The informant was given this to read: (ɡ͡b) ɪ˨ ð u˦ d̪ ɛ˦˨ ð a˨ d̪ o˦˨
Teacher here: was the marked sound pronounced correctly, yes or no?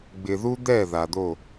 yes